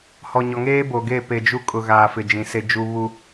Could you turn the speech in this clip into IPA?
h ɔ˨ ɲ ɔ˨ ŋ eː˦ b o˨ ɡ e˦˨ p e˨ d͡ʒ u˦ kʼ ʊ˨ ɣ aː˨ f ɪ˨ d͡ʒ ĩ˨ s e˦ d͡ʒ u˦ β u˦

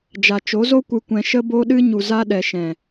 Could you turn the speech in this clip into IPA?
d͡ʒ a˨ t͡ʃ o˨˦ z o˦ kʷ ɨ˧ kʷ ɛ̃˧ ʃ ə˧ b o˧ ɗ ɨ˧ ɲ u˨ z a˧ ɗ ɛ˨ ʃ ɛ̃˨

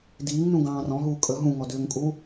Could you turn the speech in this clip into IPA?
d iː ŋ n ũ ɡ ɑ̃ː r ɔ̃ ɦ uː kʼ ə ɦ ũ ŋ ɔ d ʏː ŋ kʼ uː

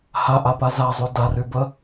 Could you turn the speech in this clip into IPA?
h a ʔ a p a z a zˤ y d a r y b ə

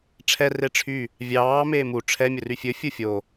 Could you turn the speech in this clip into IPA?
ʈ͡ʂʰ ɛ r e ʈ͡ʂʰ y | vʲ ɑː m eː m u ʈ͡ʂʰ ɛ mʲ ɵ r y fʲ ɵ fʲ u fʲ o

